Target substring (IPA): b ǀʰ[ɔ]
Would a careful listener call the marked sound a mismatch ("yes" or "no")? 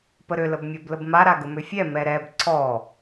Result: no